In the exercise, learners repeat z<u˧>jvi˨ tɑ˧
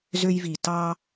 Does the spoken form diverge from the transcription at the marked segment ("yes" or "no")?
yes